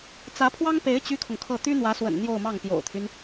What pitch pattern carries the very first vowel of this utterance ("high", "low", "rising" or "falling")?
rising